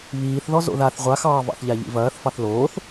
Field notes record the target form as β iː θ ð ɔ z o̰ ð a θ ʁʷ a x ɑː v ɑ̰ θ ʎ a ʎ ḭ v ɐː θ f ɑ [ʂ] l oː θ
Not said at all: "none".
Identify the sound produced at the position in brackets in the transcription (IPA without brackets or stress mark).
θ